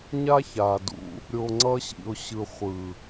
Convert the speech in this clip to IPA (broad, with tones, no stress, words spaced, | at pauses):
ɲa˦ça˨dṵ˧ | ɾʲo˨ŋ͡ǀʌ˧ɕḭ˨ʊ̯ɕɯ˨ χʷɯ˨